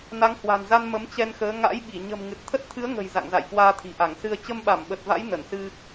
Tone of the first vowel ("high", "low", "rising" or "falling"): rising